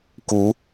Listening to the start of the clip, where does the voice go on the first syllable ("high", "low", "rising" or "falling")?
rising